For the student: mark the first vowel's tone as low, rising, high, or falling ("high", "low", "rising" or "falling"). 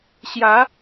rising